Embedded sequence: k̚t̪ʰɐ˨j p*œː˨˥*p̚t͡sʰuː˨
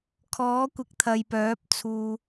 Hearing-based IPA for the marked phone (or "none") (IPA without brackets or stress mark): œː˨˥